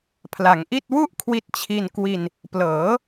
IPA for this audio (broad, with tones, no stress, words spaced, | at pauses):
pʰla˩˦ŋʔi˥˩t̚ wu˥˩ʔkʰwi˦˥t̚t͡ɕʰi˧nkwi˧n | plɤː˩˦